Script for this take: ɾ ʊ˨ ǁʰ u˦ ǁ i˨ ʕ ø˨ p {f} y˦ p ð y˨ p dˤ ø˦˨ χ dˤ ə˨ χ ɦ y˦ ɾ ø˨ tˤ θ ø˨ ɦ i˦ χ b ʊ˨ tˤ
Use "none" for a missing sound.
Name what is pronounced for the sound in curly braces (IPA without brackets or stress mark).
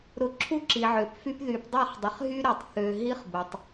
f